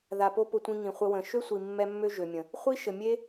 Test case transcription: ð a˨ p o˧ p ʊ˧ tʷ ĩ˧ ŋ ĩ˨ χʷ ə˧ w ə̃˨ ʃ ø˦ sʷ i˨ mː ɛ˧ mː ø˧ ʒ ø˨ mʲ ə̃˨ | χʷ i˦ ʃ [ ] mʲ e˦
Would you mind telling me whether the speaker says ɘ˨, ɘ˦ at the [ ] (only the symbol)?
ɘ˨